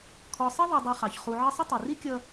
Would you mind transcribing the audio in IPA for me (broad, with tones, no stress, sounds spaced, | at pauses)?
kʰ ɔ˨ sˤ ʌ˥ ðˤ u˨ dˤ i˨ χ ɑ˩ ç χ u˨ ʕ ʌ˦ sˤ ə˥ tˤ i˩ r i˥ kʲ ʌ˦